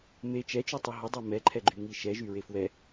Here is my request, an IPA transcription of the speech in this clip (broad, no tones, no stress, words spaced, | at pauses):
me t͡ʃɛt͡ʃytˤi ɦədˤɛ mɛǃʰɛɡ͡ǃyŋi ʃɛʒyɹe fwɛ